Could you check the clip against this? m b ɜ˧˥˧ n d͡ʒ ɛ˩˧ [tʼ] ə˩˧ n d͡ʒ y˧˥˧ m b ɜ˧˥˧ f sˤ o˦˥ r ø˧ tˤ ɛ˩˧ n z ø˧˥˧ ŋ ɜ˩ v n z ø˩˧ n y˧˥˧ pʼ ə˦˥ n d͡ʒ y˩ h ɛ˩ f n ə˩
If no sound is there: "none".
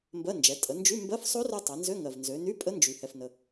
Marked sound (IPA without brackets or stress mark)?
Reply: tʼ